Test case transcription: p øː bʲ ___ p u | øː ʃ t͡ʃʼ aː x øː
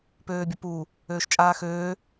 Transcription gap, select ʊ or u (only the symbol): ʊ